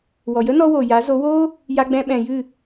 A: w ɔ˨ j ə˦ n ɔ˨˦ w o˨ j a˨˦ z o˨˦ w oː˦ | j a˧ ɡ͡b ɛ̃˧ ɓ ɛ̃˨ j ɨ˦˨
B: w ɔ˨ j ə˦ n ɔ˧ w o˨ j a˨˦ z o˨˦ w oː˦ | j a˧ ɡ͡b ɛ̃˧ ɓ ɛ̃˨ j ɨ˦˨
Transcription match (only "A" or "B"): B